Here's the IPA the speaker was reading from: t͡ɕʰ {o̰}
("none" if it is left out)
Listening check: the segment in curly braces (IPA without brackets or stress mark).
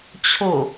o